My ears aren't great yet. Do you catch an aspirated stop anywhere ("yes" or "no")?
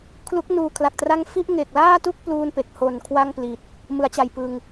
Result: yes